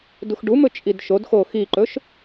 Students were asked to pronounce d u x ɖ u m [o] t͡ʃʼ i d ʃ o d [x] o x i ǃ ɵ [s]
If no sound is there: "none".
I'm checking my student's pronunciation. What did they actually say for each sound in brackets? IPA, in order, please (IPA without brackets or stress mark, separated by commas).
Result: ɵ, x, ʃ